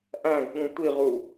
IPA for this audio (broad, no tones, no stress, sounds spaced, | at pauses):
ʔ æ̃ ɡ ɠ ũ tʷ i ʁ u